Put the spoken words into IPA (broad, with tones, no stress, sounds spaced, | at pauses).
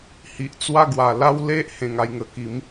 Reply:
h i˨ ʔ t͡s w a˥˧ ɡ w a˨˩ l a˦ w l e˦ ʔ h ẽ˨˩ ŋ a˧ j ŋ ə˨˩ k i˨˦ m